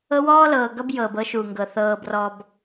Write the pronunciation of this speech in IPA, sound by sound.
ɤ˦wɔː˦lɤː˨ɡʌ˦b jɤː˨bɤ˦ʃuː˨ŋɡɤ˨ θɤː˨brɔ˨b

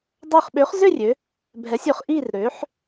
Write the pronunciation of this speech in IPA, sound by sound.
dˤœ˧˩χɓø˩˥χzʏ˥˨ rʲø˩˥ | bʱɛ˩˥sʲø˩˥χʔi˥˨r ɾø˩˥ħ

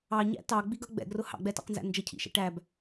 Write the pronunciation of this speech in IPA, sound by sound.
ɑɲæ̰ tɑɡ͡biɡʌ ɡ͡bɛ̰ɡrʊ hɑ̰ɡ͡bɛtɑ̰qnzæ̰ nd͡ʒəcʰḭʃɛ̰ ʈæb

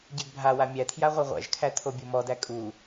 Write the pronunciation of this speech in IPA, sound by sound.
ɟɛɡbʱawa mʲætʰja ʁʷeʁʷæ̰ʒkʰæ tʰobʲomɔdæ kʼu

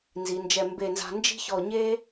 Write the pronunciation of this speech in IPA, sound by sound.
nzi˩˧nd͡ʒɛ˧˩ mbe˧˩nza̤˧ nd͡ʒi̤˥çɔ˧˩ɲe˥

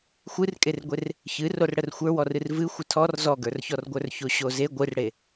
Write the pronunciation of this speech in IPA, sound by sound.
xʷɨrkʼerɡʷer | çɨrorɽər xʷə˞wɔrɨr vɨ xʷətʰɔr zɔɡə˞rçɔrɡʷə˞r çoɕoze ɡʷɨrɽe

